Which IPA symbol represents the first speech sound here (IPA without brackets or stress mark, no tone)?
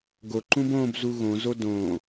ɡ